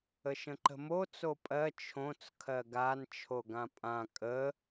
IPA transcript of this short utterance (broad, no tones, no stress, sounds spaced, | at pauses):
ə ʃ ə̃ ǃ ə̤ m o t͡s o pʼ ɜ t͡ʃʰ õ t͡s kʰ ɜ ɡ a n t͡ʃʰ o ɡ ã pʼ ã kʼ ə